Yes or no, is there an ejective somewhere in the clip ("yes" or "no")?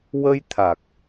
no